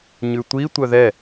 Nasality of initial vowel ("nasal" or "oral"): oral